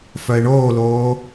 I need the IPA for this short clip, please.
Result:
f œ e̯ ɳ oː l oː

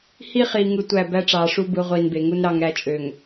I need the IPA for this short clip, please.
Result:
h i˦ χ iː˨ ŋ ɯ˦ tʷ æ˦˨ b æ˦ ʈ͡ʂ ɑː˨ ʂ u˦ b ɯ˨˦ ʁʷ iː˨ n b e˨ ŋ u˦ n ɾ ɑ˦ ŋ ɾ æ˦ t͡ʃʼ ø˨ ŋ

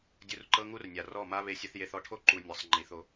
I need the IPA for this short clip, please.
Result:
dʲ u˧ r ǃ ɤ˦ ŋ u˦ r nʲ a˨ r ɔ˦˨ m a˦ β e˧ sʲ ɯ˧ θ j e˧ θ ɔ˧ ʈʰ o˦ ǃ u˨ nʲ ɤ˨ sˤ ŋ͡ǃ i˨ θ o˧

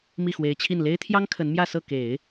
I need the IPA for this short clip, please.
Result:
m i˥˩ x w e˧˥ ɪ̯ t͡ɕʰ i˥˩ n l e˥ ɪ̯ t̪ʰ j ɑ˥ ŋ kʰ ə˧˥ n m j ä˥˧ s ɤ˥˩ k e˨˩˦ ɪ̯

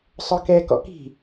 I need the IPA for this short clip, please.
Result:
sˤ œ k ɛ k ɔ̰ k i̤

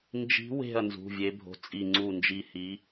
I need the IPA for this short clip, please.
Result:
n d͡ʒ i̤˨˦ w e̤˧˩ ɐ̯ n z ṳ˩˧˩ vʲ e˨˦ bʱ o̤˨˦ t͡sʼ i˧˩ ŋ͡ǀ u˧˩ n d͡ʒ i˧˩ h i˨˦

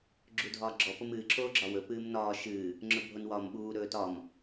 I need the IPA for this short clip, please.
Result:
ɡ͡ǁ u dʱ ɒː ɡ͡ǁ ɔ p o m ɨː ǁʰ oː ɡ͡ǁ ɒ w ɵ p ɨː m n ɒː ʃ ɨː | ŋ͡ǁ ɵ bʱ o n w ɒː m ɓ uː ɾ ɵː t ɒ m

